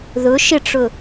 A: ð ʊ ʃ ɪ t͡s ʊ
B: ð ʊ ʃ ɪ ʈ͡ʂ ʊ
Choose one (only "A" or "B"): B